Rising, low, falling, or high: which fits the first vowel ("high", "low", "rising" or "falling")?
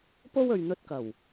high